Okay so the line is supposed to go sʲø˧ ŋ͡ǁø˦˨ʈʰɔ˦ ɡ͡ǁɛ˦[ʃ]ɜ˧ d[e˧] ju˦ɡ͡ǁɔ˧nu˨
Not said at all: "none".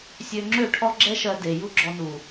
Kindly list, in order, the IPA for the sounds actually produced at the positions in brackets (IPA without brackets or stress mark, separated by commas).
ʃ, e˨